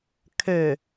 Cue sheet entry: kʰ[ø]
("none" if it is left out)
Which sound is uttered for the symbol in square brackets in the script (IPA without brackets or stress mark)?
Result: ø